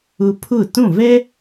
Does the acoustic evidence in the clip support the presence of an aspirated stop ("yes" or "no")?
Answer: yes